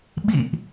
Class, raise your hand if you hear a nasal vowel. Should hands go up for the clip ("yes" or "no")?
no